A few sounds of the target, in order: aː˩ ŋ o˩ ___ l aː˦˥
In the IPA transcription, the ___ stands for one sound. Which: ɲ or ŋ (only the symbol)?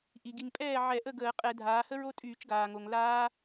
ŋ